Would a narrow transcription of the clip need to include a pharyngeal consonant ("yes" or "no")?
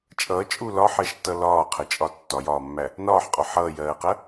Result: yes